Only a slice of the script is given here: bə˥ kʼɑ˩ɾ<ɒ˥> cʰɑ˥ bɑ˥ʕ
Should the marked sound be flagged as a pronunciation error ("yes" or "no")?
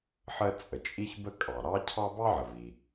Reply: yes